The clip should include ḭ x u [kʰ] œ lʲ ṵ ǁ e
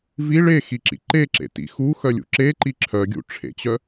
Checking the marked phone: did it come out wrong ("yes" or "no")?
yes